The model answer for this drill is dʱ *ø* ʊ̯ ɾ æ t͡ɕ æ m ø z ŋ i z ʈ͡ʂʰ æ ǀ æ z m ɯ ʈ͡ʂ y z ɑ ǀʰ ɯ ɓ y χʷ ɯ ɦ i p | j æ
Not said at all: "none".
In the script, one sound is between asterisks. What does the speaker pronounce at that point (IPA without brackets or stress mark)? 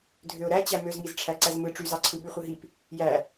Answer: ø